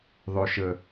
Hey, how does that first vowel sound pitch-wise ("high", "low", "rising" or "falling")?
low